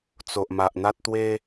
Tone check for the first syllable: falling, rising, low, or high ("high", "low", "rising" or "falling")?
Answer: low